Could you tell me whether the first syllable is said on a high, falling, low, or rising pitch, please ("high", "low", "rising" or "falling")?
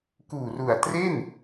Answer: low